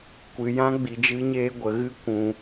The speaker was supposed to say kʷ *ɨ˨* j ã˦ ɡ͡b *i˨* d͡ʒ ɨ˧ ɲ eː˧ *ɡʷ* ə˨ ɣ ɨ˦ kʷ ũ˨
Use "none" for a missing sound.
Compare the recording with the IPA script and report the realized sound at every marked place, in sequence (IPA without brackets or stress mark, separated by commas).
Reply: ɨ˨, i˨, ɡʷ